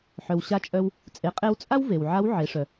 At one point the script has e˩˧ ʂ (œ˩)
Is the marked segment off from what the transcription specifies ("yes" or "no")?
no